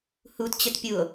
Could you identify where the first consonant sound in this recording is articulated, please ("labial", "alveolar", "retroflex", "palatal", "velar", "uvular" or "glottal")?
glottal